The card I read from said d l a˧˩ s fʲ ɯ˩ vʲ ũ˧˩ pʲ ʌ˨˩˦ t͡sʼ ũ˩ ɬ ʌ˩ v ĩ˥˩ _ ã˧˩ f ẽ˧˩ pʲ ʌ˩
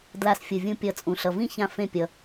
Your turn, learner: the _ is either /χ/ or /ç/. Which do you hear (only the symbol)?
ç